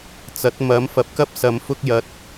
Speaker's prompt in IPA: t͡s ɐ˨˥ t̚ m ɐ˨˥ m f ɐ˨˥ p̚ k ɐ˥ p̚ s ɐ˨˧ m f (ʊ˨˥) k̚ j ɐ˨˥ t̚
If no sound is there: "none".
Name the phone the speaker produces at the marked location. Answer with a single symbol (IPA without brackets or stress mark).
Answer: ʊ˧